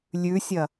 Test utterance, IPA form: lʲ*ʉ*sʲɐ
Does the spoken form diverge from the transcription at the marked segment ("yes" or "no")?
no